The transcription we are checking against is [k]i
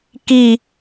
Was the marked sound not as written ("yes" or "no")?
no